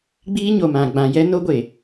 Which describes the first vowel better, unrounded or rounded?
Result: unrounded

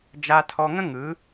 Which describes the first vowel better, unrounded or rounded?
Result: unrounded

